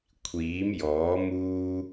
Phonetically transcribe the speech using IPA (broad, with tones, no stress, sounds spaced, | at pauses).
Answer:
kʷʰ iː˨˥ m j ɔː˨˥ m uː˥